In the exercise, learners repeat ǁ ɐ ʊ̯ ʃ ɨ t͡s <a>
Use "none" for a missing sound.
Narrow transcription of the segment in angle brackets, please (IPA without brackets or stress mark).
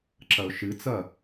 ɐ